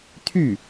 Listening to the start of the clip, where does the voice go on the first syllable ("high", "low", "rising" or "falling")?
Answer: falling